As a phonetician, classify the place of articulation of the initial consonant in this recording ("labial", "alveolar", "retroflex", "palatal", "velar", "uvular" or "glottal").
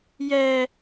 palatal